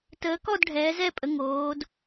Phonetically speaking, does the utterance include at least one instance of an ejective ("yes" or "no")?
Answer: yes